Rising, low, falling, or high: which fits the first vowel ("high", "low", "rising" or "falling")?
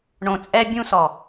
low